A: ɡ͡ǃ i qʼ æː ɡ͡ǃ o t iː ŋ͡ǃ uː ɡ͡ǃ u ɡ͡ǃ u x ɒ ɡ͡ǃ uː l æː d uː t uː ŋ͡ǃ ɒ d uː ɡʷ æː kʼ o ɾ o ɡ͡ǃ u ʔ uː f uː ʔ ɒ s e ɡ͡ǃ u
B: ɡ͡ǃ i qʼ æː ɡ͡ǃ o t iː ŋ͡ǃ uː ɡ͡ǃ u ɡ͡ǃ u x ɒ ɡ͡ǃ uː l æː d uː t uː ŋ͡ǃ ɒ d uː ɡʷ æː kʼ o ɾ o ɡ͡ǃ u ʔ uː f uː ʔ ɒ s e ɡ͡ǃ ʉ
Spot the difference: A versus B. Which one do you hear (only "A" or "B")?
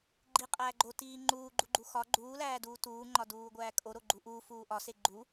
A